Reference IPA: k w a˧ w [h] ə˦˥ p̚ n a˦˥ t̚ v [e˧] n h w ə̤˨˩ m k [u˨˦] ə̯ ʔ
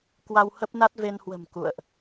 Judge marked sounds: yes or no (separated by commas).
yes, yes, no